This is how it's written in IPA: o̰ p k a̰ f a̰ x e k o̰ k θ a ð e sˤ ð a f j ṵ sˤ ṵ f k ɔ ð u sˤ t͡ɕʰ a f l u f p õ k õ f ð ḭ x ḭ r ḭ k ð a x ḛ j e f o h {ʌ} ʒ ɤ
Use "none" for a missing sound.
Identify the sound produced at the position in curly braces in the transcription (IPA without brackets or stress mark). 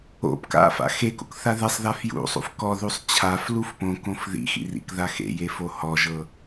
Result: ɔ